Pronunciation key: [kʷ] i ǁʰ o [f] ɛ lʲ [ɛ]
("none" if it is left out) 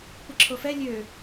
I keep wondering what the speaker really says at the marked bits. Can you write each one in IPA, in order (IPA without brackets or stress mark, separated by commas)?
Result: kʷ, f, ø